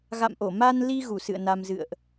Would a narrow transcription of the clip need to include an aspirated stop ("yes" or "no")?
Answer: no